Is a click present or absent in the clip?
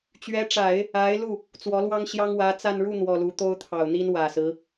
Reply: absent